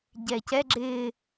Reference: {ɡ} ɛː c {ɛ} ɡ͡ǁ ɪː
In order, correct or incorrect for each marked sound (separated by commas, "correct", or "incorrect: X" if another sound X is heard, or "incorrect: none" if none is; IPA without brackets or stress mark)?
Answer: incorrect: ɟ, correct